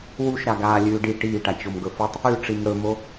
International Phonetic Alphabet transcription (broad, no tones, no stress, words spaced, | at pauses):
wuʃɾa ɡaːlʲʉːɖi ʈiːʈa t͡ɕomɡɵfutˤ | ʉʈ͡ʂim ɽɵmo